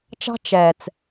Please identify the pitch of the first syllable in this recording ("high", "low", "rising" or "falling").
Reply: high